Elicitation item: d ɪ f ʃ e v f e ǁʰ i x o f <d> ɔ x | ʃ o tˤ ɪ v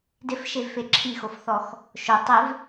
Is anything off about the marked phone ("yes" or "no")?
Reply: yes